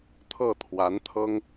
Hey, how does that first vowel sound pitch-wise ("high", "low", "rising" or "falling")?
falling